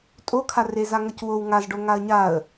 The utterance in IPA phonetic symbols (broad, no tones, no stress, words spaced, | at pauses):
tʼokʰare zaŋʌcwow ŋaz ɖoŋaə̯ɲaə̯